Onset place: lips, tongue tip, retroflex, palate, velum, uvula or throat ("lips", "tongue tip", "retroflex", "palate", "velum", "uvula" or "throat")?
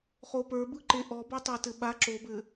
uvula